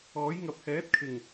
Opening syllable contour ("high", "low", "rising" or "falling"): rising